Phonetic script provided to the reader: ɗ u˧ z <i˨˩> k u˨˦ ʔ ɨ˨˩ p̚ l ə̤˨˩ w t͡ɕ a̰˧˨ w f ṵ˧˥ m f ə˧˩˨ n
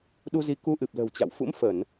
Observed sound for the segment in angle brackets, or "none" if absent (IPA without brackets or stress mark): i˨˦